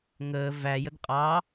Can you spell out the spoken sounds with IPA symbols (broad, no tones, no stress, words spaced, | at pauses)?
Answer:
ŋəː væjəd qʼɑ